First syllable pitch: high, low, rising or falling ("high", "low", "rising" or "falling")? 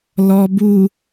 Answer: low